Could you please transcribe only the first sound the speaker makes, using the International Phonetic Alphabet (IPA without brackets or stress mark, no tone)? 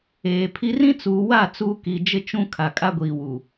eː